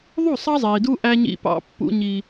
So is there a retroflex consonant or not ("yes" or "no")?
no